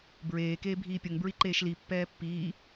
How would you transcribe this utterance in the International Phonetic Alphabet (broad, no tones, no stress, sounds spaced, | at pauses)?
b ɹ eː k eː bʱ iː pʲ ʌ ŋ b ɹ i ǃ eː ʃ l i pː ɛː pː iː